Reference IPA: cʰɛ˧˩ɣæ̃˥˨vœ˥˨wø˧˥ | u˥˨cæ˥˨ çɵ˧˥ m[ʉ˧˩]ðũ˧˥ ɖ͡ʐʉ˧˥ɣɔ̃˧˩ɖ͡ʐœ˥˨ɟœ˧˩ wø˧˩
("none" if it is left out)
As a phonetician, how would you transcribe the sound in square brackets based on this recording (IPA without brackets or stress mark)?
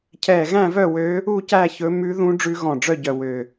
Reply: ʉ˧˥